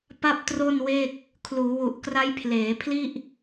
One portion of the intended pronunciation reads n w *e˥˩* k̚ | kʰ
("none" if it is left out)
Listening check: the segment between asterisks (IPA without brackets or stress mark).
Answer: e˥˩